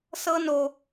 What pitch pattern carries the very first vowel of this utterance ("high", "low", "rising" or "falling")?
high